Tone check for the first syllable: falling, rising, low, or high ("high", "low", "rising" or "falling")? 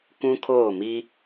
high